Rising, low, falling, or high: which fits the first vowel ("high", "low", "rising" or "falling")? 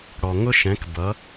low